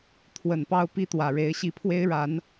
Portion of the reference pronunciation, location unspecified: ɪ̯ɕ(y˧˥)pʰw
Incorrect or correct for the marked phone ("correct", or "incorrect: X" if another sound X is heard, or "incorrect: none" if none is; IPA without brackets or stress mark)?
incorrect: i˧˥